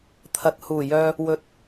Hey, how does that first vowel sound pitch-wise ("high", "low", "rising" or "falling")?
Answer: low